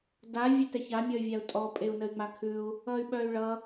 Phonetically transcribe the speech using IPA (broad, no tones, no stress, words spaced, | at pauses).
da vʲətɛça mʲʌy̯vʲau̯tʼɔ pʼeu̯nəy̯ŋ͡makʰʉu̯ | ʌy̯ɓœy̯ɭʌ